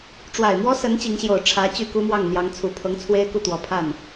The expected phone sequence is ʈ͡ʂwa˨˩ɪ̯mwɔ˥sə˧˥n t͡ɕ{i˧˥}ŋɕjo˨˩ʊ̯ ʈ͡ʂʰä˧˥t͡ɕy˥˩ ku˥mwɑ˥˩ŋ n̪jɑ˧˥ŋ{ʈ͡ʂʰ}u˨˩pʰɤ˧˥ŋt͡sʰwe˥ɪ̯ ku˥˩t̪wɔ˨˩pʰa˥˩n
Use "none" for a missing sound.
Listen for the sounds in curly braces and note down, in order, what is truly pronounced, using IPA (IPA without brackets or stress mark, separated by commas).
i˧˥, t͡sʰ